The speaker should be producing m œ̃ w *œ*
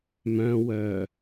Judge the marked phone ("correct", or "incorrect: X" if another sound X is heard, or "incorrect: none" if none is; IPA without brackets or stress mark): correct